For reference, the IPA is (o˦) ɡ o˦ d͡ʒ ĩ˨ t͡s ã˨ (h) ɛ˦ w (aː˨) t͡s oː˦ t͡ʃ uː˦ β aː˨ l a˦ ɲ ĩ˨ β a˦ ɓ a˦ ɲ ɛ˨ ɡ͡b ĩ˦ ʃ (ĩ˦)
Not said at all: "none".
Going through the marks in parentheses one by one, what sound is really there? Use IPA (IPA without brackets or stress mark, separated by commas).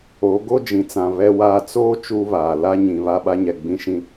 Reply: o˨˦, β, aː˦, ĩ˦